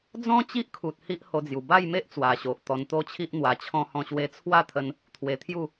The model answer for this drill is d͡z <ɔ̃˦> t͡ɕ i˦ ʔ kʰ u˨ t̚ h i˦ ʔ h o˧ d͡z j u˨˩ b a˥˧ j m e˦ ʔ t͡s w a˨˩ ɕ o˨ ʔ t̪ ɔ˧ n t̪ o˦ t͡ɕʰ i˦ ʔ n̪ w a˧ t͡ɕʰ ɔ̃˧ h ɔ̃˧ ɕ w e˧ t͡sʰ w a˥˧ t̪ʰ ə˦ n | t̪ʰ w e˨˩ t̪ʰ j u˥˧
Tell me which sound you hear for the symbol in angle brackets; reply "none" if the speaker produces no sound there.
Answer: ɔ̃˦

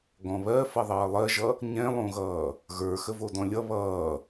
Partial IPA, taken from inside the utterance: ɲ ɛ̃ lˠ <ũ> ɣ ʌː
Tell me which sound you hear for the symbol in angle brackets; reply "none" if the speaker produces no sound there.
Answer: õ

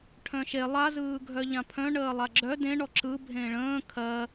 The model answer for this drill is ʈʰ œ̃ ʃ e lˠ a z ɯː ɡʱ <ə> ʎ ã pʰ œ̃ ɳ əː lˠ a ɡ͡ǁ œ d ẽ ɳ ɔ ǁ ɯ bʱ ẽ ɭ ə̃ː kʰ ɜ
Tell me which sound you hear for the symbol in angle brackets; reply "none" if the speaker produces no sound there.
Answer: œ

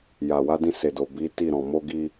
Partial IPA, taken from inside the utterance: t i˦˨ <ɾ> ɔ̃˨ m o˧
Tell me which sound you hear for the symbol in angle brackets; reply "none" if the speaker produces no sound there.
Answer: ɾ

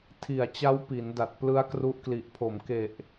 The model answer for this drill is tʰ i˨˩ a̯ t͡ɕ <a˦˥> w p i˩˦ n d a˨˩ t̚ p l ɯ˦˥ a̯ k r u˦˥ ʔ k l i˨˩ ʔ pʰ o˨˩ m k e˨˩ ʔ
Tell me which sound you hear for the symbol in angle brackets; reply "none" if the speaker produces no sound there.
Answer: a˦˥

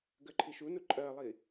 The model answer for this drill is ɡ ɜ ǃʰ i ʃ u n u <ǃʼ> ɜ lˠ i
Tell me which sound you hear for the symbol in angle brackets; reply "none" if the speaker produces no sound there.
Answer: ǃʼ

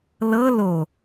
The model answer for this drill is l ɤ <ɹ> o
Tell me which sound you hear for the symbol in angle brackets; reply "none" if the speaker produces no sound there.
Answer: l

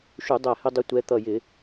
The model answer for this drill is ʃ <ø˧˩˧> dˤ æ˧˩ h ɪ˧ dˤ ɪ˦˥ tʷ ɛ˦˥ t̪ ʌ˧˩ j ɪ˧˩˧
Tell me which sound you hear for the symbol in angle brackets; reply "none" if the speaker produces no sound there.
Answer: u˧˩˧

